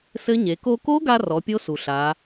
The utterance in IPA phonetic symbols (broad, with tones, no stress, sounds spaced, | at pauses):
s ɘ˦˥ ɲ e˩˧ k o˧ k o˦˥ ɡ a˧ r ɔ˩˧ pʲ o˦˥ s u˩ ɬ a˩˧